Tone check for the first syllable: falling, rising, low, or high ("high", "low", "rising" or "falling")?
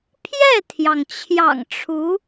falling